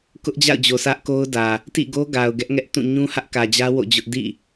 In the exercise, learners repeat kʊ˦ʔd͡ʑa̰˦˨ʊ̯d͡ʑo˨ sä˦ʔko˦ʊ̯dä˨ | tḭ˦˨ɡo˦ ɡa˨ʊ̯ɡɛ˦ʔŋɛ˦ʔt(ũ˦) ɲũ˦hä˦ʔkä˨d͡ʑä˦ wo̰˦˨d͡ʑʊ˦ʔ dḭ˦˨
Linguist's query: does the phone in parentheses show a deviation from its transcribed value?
yes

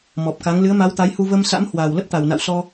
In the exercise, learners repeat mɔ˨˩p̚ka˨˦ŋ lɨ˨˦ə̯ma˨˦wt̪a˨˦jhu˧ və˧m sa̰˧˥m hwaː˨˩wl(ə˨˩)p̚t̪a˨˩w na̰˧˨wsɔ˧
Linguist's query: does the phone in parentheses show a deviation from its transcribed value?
yes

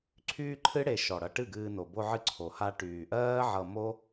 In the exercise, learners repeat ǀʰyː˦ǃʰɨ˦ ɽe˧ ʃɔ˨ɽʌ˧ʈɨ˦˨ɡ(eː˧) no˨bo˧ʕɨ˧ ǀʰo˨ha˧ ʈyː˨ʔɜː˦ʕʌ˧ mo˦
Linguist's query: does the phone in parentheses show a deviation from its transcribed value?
yes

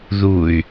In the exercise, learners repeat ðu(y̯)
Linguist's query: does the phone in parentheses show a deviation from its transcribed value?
no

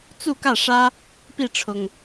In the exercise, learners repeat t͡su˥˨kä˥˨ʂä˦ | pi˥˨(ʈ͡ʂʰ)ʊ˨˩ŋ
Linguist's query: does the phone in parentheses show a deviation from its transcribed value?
no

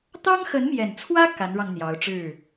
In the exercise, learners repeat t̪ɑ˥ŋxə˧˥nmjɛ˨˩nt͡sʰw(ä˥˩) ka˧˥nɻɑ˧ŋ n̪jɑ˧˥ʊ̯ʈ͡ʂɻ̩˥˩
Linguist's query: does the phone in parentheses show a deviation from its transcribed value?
yes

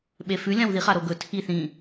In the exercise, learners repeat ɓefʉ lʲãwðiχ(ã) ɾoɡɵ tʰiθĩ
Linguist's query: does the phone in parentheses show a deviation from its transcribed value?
yes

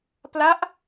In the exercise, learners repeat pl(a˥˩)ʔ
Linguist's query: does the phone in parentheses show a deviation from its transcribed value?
yes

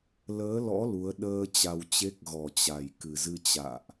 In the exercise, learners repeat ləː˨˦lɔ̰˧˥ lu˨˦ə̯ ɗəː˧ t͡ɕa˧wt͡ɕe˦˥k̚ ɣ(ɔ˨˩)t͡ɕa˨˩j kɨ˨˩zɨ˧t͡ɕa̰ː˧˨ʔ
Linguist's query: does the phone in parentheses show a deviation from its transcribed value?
no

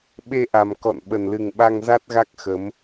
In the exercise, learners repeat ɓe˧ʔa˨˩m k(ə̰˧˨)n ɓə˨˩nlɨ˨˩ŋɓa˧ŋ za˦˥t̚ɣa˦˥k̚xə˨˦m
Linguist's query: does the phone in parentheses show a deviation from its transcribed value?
yes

